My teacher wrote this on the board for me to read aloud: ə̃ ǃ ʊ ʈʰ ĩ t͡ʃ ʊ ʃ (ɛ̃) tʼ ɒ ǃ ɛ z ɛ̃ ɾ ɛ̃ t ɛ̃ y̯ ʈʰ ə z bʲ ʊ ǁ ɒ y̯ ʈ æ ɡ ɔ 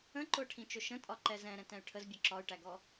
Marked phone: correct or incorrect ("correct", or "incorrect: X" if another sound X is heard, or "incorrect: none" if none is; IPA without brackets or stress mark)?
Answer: incorrect: ə̃